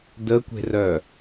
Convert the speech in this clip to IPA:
dəkʷe̤rœ

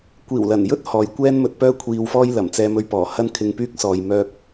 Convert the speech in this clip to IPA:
kʷiː˨˩wlɐ˨˩njɵ˥t̚ hɔː˨jkʷɛː˥nmɵ˧t̚pœː˥ kʷʰiː˧wfɔː˥jlɐ˨˩m t͡sɛː˧mɵ˧ɥpɔː˨˩ hɐ˥nkʰɪ˧ŋpyː˥k̚sɔː˨j mœː˧k̚

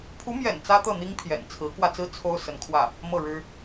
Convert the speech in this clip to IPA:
pʰu˧˥mjɛ̰˨˩n t͡sä˥t̪ɤ˥˩n̪i˥ŋ pʰjɛ̰˨˩nt͡sʰɹ̩˧˥kwä˧t͡sɹ̩˥ t͡sʰo˥ʊ̯ sə˧˥nkʰwä˥˩ | mɤ˥˩ɻɻ̩˥

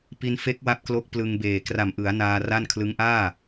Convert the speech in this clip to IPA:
pi˧nfe˦˥k̚wa˦˥p̚ klo˦˥k̚plɯ˧ŋbeː˨˩ kra˨˩mʔɯ˩˦a̯naː˧ ra˥˩n kʰlɯ˦˥ŋʔaː˥˩

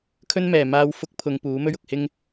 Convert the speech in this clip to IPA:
kʰɵ˥nmɛː˨ maː˧wfʊ˧k̚ pʰʊ˨˧ŋ puː˨˥mɵ˥ɥ ʊ˨k̚hɪ˧ŋ

